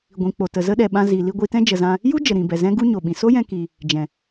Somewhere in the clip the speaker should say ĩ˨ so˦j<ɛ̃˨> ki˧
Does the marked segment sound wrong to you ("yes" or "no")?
yes